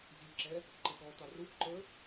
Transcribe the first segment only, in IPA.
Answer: zʲ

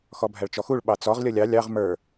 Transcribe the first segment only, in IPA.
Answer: x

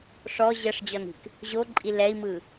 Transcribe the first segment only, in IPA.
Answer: ʂ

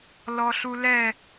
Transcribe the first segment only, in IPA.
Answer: l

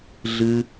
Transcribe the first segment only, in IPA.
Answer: ɮ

